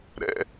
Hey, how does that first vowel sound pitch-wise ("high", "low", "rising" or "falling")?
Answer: high